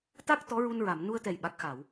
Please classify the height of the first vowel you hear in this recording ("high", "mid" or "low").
low